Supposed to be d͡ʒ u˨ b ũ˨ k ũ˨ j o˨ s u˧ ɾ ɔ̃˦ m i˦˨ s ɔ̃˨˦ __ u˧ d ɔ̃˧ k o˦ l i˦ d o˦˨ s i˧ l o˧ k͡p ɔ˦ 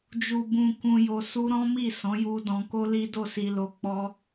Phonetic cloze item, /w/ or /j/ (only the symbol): j